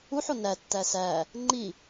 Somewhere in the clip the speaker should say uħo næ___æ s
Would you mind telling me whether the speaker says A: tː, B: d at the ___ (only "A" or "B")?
A